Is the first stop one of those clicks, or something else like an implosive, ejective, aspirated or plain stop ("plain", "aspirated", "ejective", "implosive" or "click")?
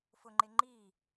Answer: click